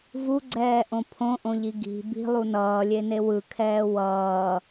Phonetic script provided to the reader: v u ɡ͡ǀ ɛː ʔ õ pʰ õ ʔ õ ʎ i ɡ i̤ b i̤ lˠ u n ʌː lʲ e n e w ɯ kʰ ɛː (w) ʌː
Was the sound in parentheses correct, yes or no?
yes